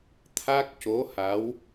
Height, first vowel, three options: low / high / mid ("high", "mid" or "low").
low